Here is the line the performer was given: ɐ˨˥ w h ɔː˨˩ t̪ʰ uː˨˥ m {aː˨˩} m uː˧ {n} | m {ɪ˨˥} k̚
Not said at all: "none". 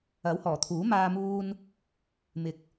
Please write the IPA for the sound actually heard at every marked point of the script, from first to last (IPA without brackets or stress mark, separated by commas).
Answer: aː˧, n, ɪ˨˥